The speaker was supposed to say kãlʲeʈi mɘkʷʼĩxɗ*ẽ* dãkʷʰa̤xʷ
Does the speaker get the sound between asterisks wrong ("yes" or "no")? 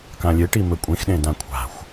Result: no